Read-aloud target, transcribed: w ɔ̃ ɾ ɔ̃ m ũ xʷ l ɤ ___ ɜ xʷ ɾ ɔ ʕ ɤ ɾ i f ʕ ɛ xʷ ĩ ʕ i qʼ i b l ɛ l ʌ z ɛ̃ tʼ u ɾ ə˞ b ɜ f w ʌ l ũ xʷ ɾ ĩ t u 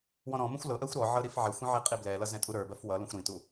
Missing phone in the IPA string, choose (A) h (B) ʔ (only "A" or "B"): B